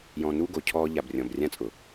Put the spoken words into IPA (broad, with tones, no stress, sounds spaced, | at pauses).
j ɔ̃˧ n u˦ ɡ o˨ cʰ ɔː˧ ʎ a˨ b rʲ ɔ̃˨ b rʲ ã˧ t͡sʼ ʊ˨